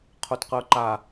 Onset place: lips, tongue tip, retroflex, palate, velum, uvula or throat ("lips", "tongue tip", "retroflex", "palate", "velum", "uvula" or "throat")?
uvula